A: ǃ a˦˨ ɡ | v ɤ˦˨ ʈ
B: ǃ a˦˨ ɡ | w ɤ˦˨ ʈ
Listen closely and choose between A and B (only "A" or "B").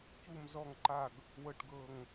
B